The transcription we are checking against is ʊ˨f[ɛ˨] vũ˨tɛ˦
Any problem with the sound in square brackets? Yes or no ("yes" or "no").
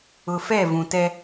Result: yes